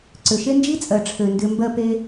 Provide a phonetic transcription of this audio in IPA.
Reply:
ǀ ʏ˨ ʃ e˦ n d͡ʒ i˦ t͡sʼ ɜ˨ ʈ͡ʂʰ ø˨ n d ʏ˧ m b ɜ˧ p e˧

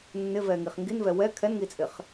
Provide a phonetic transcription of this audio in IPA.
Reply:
nː ɪ v ɛ ŋ i χ ŋ ɡ i n v ɛ w ɛ kʰ ɛ n ŋ i t͡sʼ ɪ χ

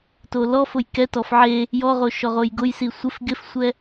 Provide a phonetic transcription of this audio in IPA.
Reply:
t o l ɔ f ʊ j k ɛ t ɔ f ʕ e | j ɔ ʁ o ʃ ɔ ʁ o j ɡ ʊ j s i sʷ ɪ f ɡ ɪ f sʷ ɛ

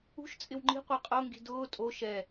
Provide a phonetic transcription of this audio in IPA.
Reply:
ṳ ʃ t͡sʼ ɪ w ŋ͡ǃ i̤ qʷ ɛ qʼ o ŋ ɡ i̤ d ʊː tʼ o ʃ ɛ

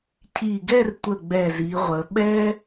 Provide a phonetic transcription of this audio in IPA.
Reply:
cʰ i˧˩ ɡ ɛ˥˧ r tʷ ə˧˩ ɡ͡b ɛ˧˩ z i˩˧ ʁʷ ə˩˧ ɓ ɛ˥

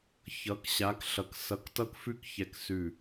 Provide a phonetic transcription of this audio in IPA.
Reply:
ç ʌ˨˦ k ɕ a˨˦ k ɬ ʌ˨ k s ʌ˨˦ k t ʌ˦˨ k f ʉ˥ k ç ɛ˦˨ k s ʉ˦˨

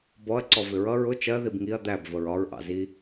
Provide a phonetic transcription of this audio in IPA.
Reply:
b ɔ ɐ̯ ǀ ɔ v ɪ ɹ ʌ ɹ ʊ t͡ʃ ɜ ð i b ŋ i ɐ̯ d̪ æ b v ə ɹ ɒ ɹ ʔ ɑ̰ z i

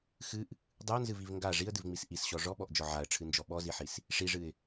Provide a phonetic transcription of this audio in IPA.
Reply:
x ɨ ʔ | dˤ ɨ ʊ̯ n z ɨ v i v ŋ ɡ a ʐ i ə̯ d ɨ v ŋ͡m i s ʔ i s ɕ ɔ ʐ ɔ ɓ ɔ ʔ d͡ʒ ɔ ʕ a ə̯ ʈ͡ʂʰ ɨ n d͡ʒ ɔ ɓ ɔ z i ħ i s | ʂ i ʐ ɨ ɪ̯

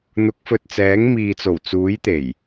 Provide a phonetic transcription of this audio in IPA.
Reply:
n̪ ʊ˨˥ k̚ f ɵ˨ t̚ t͡s ɛː˨˥ ŋ m iː˨ t͡s o˨˩ w t͡s uː˨˥ j t̪ e˨˩ j

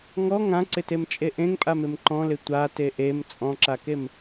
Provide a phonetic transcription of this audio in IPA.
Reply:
ŋ ɔ ŋ ã ǀ ɪ t e m t͡ʃʼ e ʔ ẽ ŋ pʼ a m ɪ m ǃ ɔ̃ l ɪ tʷ a t e ʔ e m t͡sʼ ɔ̃ ǁ a k e m

